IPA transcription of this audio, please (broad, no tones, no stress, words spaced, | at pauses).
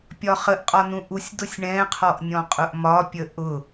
pʲɒχəʔ qʼɒnũʔusʲ dʊsʲɳɛ̃ qʰɔʔnʲɔ̃qʼʊʔmɒ pʲəʔʊ